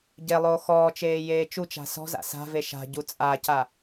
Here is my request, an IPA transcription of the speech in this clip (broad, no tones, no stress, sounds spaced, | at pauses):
ɟ e lˠ oː x ɔː t͡ʃ eː j eː t͡ʃ u t͡ʃ a̤ s ɔ̤ z a̰ s a̤ v e ʃ a̤ ɟ u t͡sʼ a c a